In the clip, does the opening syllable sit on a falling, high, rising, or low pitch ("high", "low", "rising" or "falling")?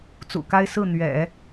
low